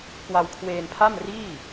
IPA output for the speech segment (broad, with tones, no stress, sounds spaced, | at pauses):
k w a˧ w kʰ w eː˧ n pʰ a˥˩ m r iː˥˩